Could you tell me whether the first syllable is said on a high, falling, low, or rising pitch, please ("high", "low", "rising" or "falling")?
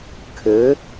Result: rising